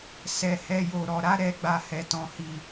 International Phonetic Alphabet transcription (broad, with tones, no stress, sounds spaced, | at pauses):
s ɛ˧ h ɛ˧ j o˨ ɾ ɔ˨ ɾ a˨˦ ɾ ɛ˧ ɡ͡b a˨ h ɛ˨ t ɔ̃˨ h i˨